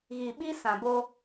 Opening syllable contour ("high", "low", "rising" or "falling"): low